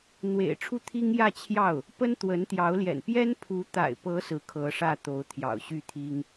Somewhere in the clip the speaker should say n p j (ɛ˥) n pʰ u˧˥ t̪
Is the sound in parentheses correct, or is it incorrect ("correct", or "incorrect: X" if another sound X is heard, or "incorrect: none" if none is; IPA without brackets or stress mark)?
correct